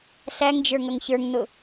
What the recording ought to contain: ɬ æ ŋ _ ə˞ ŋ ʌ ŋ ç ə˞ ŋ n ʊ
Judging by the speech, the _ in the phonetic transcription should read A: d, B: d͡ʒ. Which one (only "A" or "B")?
B